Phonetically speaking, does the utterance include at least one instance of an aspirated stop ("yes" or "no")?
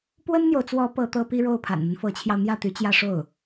yes